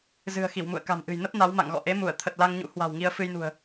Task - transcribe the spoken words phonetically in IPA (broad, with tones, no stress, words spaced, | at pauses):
zɨ̤˨˩ə̯xi˧˩wmṵ˧˨ə̯ ka̤˨˩mʔɨ̤˨˩j nə˦˥p̚ na˨˦wma̰˧˨ŋɣɔ̰˧˨ ʔe˨˦mu˧˩ə̯ t̪ʰə˨˩t̚la˧ŋɲṵ˧˥ hwa̤˨˩wŋi˧ə̯ fɨ˧jnṳ˨˩ə̯